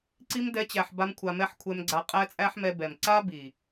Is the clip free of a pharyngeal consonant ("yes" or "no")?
no